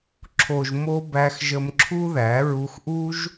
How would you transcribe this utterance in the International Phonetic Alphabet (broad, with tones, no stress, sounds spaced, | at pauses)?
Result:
ǁʰ o˨ ʒ m o˧ b æ˧ x ʒ ə˧ m ǁʰ u˦ ð æ˨˦ ɹ u˧ x ʔ u˦ ʒ